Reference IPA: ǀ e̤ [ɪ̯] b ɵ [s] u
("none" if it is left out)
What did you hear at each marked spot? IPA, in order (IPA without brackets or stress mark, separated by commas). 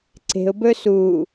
ʊ̯, s